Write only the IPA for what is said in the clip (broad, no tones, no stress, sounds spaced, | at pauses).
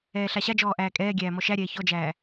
ɛː ɬ a ɕ a d͡ʒ ɔː ʔ æː kʼ ɛː ɡʲ æː m ɔ ʃ æ ɾʲ ɛː ç ɔ d͡ʒ æː